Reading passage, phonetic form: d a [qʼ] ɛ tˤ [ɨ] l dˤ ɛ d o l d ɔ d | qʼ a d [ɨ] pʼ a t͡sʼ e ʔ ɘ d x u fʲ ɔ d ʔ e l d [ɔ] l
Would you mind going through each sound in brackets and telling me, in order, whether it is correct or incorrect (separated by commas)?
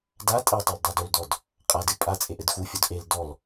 incorrect, correct, correct, correct